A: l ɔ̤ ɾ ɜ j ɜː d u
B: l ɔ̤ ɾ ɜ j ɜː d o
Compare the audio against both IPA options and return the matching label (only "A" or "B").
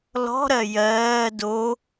B